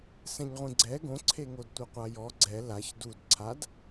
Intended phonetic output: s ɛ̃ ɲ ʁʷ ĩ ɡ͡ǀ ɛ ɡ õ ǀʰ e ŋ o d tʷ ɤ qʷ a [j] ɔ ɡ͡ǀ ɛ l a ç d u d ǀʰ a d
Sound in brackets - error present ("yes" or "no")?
no